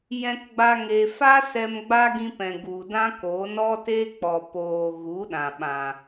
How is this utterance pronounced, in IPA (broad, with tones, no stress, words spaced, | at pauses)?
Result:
jɛ̃˦kɡ͡ba˦ŋe˧ fa˦sɛ˧m ɡ͡ba˦ɡĩ˧pɛ̃˨ ɡu˨dã˦koː˨˦n ɔ˦te˦k͡pɔ˨poː˨ ɣu˨˦ɗã˨ ɓã˨